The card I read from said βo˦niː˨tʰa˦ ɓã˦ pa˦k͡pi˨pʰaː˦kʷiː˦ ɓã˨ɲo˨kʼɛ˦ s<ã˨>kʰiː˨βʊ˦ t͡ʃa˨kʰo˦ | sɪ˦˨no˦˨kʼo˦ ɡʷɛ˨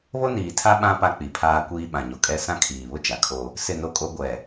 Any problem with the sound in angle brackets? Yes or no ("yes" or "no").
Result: yes